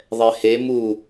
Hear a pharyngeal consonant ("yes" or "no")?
no